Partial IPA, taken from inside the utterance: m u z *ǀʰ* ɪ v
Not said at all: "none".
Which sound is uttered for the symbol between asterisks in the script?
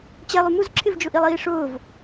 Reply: ǁʰ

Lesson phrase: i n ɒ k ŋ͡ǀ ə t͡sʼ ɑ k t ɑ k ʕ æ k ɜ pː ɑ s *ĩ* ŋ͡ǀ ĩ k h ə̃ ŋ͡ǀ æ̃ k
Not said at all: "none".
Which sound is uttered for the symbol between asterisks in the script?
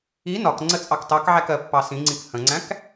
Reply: ĩ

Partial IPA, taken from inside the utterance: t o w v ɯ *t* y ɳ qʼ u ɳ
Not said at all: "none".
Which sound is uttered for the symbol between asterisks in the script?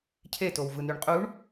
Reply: n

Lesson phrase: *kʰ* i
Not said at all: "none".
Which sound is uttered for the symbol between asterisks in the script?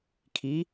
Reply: kʰ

